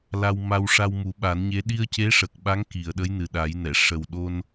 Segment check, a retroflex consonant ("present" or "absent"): present